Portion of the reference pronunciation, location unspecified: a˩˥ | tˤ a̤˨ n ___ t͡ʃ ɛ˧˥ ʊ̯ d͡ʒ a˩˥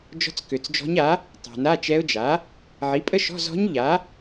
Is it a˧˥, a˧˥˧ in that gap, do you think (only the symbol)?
a˧˥˧